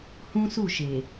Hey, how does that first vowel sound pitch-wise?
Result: high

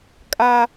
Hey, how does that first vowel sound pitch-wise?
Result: high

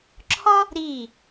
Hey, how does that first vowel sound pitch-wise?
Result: high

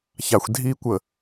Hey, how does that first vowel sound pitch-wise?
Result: low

